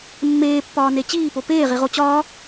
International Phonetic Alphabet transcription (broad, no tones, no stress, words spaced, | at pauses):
mːeːpːɒːne t͡ɕiːpo peːʁiʁo t͡ɕɒː